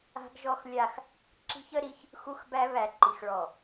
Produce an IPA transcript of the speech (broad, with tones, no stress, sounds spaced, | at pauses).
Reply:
a̤˦ ɡ ʒ ɔ˦ x lʲ a˦ x | ǁ i̤˦ ç ə˦ ɾ i˦ ç | x u˦ x b æ˦ β æ˨ ǃ i˨ x ɭ ɔ˨